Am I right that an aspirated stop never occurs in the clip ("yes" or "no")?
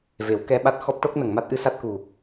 yes